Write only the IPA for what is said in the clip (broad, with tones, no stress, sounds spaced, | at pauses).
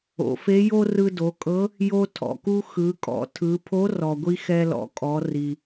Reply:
o̰˩˧ f e˧˥ j o˥ r ɯ˧ d o˩˧ kʼ ɤ˧˥ | j o˧ tʰ ɔ̰˩ k u˧ x ɯ˩˧ kʼ ɔ̰˩˧ tʰ ɯ˩˧ pʰ o˧˥ r ɔ˩ ɡʷ i˧ x ɛ˧ l ɔ̰˩˧ kʼ ɔ˩˧ r i˩